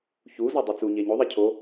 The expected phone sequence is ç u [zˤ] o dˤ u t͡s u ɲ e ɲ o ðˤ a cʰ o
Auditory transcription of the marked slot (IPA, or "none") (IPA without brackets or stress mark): z